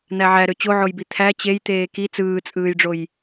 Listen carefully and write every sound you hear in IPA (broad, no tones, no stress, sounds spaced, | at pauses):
n̪ æ ʕ æ ɾ ø t͡ɕ o ʕ o j b i t̪ʰ æ t͡ɕ e j t̪ eː k i t͡s ɯː t͡sʼ ɯː j ɖ͡ʐ o j